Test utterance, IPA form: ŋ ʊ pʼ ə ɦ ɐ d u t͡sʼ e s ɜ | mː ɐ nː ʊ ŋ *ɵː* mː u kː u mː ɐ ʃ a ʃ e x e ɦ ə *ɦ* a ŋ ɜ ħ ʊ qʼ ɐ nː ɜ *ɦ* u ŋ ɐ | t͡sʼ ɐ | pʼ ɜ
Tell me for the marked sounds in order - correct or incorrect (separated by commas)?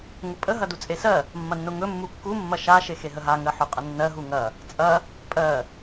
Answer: incorrect, correct, correct